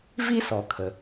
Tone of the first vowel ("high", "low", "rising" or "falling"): high